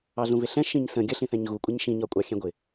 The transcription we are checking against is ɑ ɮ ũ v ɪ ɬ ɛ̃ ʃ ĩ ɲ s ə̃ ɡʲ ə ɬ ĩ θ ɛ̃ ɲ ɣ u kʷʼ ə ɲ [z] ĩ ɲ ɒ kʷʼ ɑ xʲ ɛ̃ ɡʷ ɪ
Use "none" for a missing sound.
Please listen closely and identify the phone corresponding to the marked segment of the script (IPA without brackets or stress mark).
ʃ